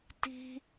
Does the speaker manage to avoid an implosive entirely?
yes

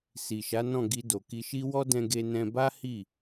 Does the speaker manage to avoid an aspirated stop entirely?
yes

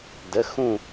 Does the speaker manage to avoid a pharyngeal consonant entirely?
yes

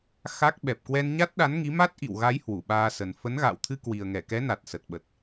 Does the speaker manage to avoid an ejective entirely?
yes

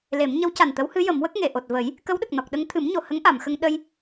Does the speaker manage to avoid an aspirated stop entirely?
no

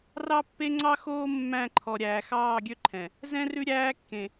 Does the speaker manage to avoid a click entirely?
no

